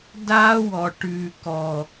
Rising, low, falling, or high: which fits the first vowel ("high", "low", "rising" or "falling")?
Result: high